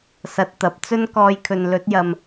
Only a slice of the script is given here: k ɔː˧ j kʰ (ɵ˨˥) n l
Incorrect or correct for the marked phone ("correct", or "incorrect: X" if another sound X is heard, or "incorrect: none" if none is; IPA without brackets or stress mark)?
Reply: incorrect: ɵ˨